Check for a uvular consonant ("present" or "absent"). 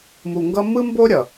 absent